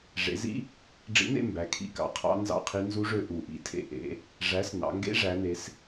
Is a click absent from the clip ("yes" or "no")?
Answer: yes